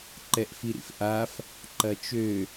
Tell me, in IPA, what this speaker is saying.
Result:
ǃ ɛ ʔ f i ɾ ḭ f ʔ a f | ǃ ɐ t͡ʃ ø

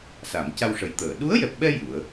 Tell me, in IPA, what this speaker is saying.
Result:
s a˨˩˨ m c a˧ w ʂ ə˨˩ j t̪ əː˨˩˨ ɗ u˧˥ ə̯ j ɛ˨˩ p̚ ɓ ɛ˧ j u˨˩˦ ə̯

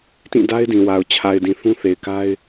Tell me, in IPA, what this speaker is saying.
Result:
t ĩ˦˨ d a˦ ɪ̯ d ĩ˨ w a˨ ʊ̯ t͡ɕʰ a˨ ɪ̯ d ĩ˨ θ ũ˦ θ e˨ ɪ̯ k a˦ ɪ̯

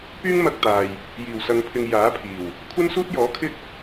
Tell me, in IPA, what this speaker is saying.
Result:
p yː˥ ŋ m ɐ˧ k̚ t̪ aː˨ j | j iː˨˩ w s ɐ˨˧ ŋ pʰ ɪ˨ ŋ j aː˨˥ pʰ iː˨˩ w | kʷʰ ɐ˥ n s uː˥ t̚ j ɔː˨˥ kʰ ɪ˥ k̚

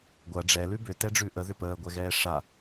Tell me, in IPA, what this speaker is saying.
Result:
ɡʷ ɐ ɖ͡ʐ ɛ l ʉ b ʏ t ɛ ɖ͡ʐ ʉ ʔ ə ð ʏ p əː ɡʷ ɛ ɣ ɛː ʂ a

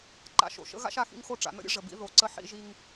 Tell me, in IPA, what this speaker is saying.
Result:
ǃ a̰˨ ʃ o̰˨ ʃ ə̰˦ ɣ a̰˦ ʃ a˨ x ḭ˦ ŋ x o˦ ʈ͡ʂ a̰˨ n ə̰˦ ɾʲ ə̰˦ ʐ ə˨ b ḭ˦ ð o˨ ǀ ə˦ ħ ḭ˦ ʒ i˦ ŋ

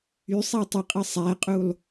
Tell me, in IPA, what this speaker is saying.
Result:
y sˤ æ tˤ ɯ qʼ ɯ sˤ æ qʼ u lˠ

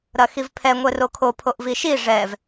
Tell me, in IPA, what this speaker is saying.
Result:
ɾ ɐ x i v pʰ ɛ ŋʷ ɛ r o kʰ o pʰ o ʔ v i ʃ i ʐ ɛ v

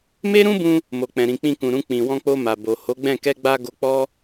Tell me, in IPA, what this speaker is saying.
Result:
m e˦ ɾ ũ˦ b ũ˧ | m o˨ k͡p ɛ̃˨ ɾ ĩ˨ k͡p ĩ˧ k ũ˨ ɾ ũ˧ k͡p ĩ˨ w ɔ̃˧ k͡p o˧ m a˨ b o˨ h o˨˦ ɡ͡b ɛ̃˦˨ k ɛ˧ ɡ͡b a˧ ɡ o˧ k͡p ɔ˦

